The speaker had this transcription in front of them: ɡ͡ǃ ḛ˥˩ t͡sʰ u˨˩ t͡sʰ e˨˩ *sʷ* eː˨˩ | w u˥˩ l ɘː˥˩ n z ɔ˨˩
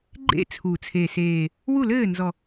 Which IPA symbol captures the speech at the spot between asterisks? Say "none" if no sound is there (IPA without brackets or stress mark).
s